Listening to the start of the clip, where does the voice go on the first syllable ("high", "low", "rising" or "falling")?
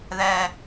low